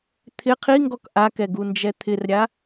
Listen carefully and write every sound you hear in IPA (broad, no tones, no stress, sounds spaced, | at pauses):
t̪ʰ ɪ qʰ i ŋ ɡ ɔ k ʔ a k ɛ ɡ u n d͡ʒ ɛ t̪ʰ ɪ r ɾʲ a